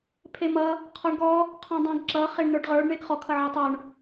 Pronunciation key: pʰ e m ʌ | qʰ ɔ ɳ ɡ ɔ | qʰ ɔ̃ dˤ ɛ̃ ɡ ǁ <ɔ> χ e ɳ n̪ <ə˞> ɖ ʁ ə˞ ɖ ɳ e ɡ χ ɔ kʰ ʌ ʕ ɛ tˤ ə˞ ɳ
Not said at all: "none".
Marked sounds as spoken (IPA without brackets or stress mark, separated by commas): ʌ, ə˞